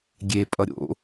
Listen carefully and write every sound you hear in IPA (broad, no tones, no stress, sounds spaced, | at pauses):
ɡʲ e pʼ ʌ ɾʲ o̰